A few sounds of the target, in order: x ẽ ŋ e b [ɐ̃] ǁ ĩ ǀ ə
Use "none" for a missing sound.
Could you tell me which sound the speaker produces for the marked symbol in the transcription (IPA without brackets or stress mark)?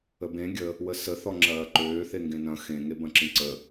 ɐ̃